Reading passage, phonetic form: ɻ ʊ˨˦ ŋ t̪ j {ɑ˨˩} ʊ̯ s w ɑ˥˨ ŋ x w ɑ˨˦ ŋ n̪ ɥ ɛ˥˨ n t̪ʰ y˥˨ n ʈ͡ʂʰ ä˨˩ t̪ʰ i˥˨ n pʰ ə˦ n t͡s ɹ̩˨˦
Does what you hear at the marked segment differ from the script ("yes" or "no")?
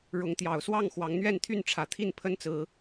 no